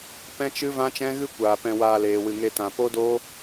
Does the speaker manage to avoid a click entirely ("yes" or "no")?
yes